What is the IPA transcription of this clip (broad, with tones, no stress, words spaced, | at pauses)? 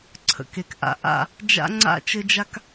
ǀʰə̰˨k e˨kʔa̰˨ ʔa̰˦˨ | d͡ʒa̰˦ŋ͡ǀa̰˦ t͡ʃɘ˦d͡ʒa˦k